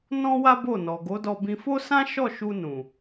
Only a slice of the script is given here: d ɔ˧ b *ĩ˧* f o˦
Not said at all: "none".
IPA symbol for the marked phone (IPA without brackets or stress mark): ĩ˧